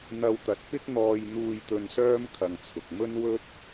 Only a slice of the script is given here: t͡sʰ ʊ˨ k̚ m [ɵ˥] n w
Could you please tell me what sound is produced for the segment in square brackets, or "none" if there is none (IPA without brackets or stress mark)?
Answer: ɵ˥